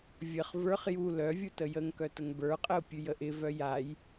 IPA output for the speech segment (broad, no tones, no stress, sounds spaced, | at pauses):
vʲ ə χ v ə˞ χ j u l œ vʲ u t ə j ə ŋ k œ t ə ŋ b ə˞ qʼ ə ʊ̯ pʲ ʉ j ə ʔ ɪ v œ j a j